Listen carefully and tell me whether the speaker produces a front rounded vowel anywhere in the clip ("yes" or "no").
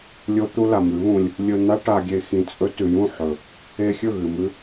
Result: no